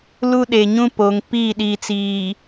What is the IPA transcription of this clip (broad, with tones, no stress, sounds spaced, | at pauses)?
l u˦ ɗ e˨ ɲ ũ˦ p o˨ ŋ p i˦˨ ɗ i˨ t͡s iː˨